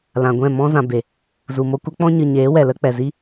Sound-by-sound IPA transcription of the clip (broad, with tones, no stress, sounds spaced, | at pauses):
l ã˨ ɡʷ ɛ̃˦˨ m ɔ̃˧ z ã˨ b e˨ | z u˨ m o˧ kʷ ɛ˦ k͡p ɔ̃˦ ɲ ɨ˨ ɲ eː˨˦ w ɛ˨ l ə˧ k͡p ɛ˨ z i˦